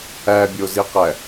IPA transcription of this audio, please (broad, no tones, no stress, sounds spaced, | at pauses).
æ bʲ o z i q æ